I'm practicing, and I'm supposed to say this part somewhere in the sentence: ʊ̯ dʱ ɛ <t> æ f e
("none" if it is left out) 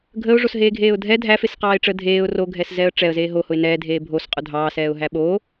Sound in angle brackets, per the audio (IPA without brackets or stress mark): dʱ